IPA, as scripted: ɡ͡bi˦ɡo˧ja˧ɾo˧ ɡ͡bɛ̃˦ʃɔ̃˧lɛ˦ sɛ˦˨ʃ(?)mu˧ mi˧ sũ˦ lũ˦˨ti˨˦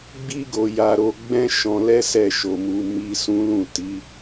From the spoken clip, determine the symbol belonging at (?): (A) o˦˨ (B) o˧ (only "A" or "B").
B